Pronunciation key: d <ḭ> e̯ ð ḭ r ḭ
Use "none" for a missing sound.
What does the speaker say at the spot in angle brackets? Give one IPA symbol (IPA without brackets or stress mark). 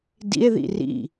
ḭ